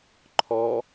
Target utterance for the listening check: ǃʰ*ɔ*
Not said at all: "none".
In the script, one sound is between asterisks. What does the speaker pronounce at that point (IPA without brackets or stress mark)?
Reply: ɔ